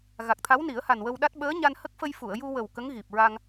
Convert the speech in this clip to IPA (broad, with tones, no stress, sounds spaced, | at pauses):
ɣ a˨˩ k̚ t̪ʰ a˧˥ w n i˨˩˦ ə̯ h a˨˩ n w ə˧ w ɗ a˦˥ t̚ ɓ əː˧˥ ɲ a˧ n h ə˦˥ k̚ f ə˧ j f u˨˩˨ ə̯ j u˧ w ə˨˩ w k ə˧˥ ŋ ɣ i˨˩ p̚ ɹ a˧ ŋ